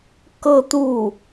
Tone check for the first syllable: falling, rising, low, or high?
falling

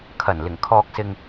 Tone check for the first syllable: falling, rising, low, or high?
low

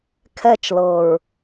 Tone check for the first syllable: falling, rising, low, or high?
falling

